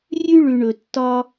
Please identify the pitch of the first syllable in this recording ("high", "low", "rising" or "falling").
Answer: high